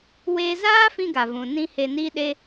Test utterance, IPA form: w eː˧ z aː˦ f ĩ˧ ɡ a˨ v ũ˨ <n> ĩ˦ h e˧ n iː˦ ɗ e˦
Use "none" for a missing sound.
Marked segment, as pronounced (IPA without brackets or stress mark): n